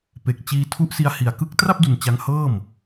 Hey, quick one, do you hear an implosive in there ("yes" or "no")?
no